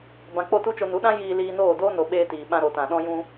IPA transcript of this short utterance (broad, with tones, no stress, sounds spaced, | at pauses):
b ã˧ k͡p o˦˨ t u˦ t͡ʃ o˧ n u˨˦ ɗ ã˦ j iː˧ l iː˧ n oː˦˨ d oː˦ n o˨ ɓ eː˧ t iː˨ ɓ ã˧ ɾ o˨ t ã˨ ɗ ɔ̃˦ j ũ˦